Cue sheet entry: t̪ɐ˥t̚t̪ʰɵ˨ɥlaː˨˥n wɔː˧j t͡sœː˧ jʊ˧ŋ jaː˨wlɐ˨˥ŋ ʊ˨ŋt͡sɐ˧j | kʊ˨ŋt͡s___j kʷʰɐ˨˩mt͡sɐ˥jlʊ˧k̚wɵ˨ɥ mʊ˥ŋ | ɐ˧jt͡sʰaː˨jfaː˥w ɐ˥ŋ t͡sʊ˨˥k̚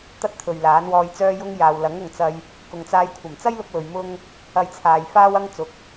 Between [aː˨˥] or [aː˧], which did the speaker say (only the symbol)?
aː˧